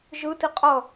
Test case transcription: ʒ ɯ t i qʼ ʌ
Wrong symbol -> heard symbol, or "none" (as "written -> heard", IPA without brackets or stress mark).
none